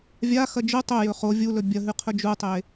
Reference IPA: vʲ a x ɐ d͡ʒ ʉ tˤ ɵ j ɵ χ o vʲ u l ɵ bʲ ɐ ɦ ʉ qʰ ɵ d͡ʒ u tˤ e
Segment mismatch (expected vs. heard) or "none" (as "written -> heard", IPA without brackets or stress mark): none